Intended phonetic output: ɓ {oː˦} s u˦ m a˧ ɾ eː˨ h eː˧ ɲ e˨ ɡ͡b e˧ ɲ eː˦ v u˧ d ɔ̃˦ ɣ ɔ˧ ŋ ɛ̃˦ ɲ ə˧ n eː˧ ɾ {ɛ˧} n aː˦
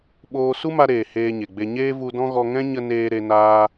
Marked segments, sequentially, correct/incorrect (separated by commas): incorrect, incorrect